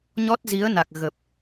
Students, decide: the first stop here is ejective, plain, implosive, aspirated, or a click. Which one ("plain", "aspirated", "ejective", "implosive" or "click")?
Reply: plain